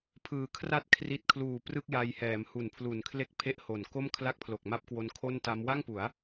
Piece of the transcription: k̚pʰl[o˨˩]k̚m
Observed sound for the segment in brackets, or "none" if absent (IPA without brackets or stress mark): o˨˩